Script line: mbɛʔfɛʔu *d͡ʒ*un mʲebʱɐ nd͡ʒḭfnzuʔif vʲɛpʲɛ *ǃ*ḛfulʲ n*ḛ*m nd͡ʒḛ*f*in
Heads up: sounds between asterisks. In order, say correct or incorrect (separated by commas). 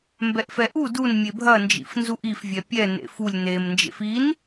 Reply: incorrect, incorrect, incorrect, correct